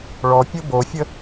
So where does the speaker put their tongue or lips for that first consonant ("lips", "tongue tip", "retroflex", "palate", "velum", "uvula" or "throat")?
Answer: retroflex